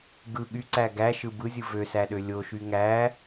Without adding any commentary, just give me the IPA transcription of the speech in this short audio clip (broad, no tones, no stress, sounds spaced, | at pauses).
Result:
ɡ ɯ ɠ y ǀ æ ɡ æ ʃ ɯ b ɯ zʲ ɯ v ø s æ ɗ ø lʲ o ʃ y ŋ æ